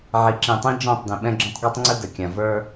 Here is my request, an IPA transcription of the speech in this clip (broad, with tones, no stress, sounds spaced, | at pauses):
ʕ i˨ ǁ ĩ˨ tˤ ĩ˦ d͡ʒ ɔ̃˦˨ tˤ d ĩ˨ ɓ ɛ̃˦ ɡ͡ǁ ɔ̃˦ tˤ ɡ a˦ tˤ ŋ͡ǀ ə˦ d ə˨ kʲ ã˨ v ə˞˦